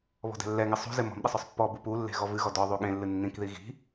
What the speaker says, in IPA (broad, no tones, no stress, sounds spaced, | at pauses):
β ɔ̤ d ɛ̤ lː ɛ ŋ ɪ sˤ ṳ z ɪ m ɔ̤ m ɗ ɪ sˤ ʊ sˤ pː ɔ b u p u lː e̤ ɣ ɔ v ɨ ɣ ɔ d ɔ ðˤ u ɠ ẽ lː ɨ nː ĩ k ð i ɣ i̤